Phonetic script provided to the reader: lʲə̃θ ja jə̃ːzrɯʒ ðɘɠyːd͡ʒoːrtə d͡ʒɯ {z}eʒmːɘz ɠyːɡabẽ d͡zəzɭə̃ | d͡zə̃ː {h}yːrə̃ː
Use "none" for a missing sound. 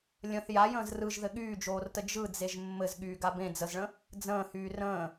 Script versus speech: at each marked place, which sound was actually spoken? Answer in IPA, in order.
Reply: d͡z, h

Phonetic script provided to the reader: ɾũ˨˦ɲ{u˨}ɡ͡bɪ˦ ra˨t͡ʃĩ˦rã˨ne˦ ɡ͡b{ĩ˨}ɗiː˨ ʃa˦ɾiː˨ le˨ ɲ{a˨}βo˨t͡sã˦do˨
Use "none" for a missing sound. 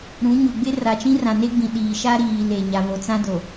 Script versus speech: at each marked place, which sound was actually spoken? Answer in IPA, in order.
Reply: u˨, ĩ˨, a˨

